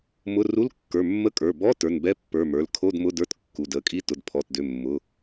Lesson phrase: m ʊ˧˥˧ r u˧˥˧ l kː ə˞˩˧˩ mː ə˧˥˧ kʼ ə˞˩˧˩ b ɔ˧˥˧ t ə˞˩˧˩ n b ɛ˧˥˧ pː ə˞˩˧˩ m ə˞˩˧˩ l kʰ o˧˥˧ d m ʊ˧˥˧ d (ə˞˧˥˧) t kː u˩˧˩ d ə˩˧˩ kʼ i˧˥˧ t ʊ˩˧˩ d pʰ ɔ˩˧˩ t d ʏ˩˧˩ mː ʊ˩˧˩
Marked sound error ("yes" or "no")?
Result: no